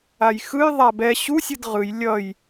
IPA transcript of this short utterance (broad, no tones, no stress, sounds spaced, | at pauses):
a j x ɯ j ðˤ a b ɛ ɕ u sʲ ɯ d ʁ ɯ j lʲ ʌ j